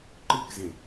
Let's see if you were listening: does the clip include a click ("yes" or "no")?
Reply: yes